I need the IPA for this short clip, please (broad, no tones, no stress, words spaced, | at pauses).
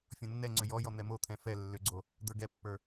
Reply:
fʲɔ̃nːɛŋ͡ǀʏ jɔjɔ n̪ɛmot̪ʰɛ̃ fɛ lːʏɡ͡ǀo | d̪ə˞ɡɛpːə˞